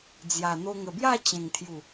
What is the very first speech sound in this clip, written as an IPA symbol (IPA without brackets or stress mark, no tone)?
d͡z